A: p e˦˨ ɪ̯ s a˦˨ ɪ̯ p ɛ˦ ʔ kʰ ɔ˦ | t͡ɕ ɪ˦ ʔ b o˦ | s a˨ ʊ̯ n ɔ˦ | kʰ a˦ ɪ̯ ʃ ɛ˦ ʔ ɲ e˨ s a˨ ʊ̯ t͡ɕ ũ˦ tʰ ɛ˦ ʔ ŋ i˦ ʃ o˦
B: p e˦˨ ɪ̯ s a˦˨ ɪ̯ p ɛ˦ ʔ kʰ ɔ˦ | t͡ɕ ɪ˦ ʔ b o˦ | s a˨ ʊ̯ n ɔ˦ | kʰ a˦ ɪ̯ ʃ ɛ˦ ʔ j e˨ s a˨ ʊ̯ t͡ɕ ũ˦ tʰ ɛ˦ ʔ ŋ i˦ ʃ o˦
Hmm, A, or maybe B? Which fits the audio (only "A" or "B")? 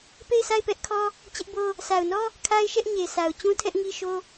A